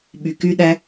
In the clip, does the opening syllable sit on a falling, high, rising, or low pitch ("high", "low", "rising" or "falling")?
low